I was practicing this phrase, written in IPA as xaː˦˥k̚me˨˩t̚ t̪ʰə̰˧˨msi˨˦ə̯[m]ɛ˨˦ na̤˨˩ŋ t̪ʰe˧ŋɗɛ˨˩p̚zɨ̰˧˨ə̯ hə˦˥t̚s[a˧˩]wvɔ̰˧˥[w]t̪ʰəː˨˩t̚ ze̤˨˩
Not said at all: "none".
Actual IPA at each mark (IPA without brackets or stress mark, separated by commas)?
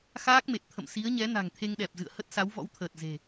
ɲ, a˨˦, w